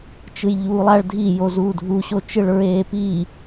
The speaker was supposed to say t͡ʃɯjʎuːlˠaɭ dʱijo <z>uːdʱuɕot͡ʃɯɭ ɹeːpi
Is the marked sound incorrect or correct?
correct